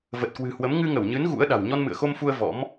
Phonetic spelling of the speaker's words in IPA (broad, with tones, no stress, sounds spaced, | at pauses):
v ə˨˩ t̚ k w ɨ̤˨˩ h w ə˨˦ m ŋ ɨ˧ ŋ ə˧˩ w ɲ ɨ˨˦ n ɣ ṵ˧˥ ə̯ ɗ a̤˨˩ w ɲ ɔ˧ n m ɨ̰˧˨ ə̯ x o˧ m f u˧ ə̯ v ɔ̰˧˥ m